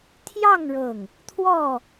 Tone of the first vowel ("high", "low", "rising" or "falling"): falling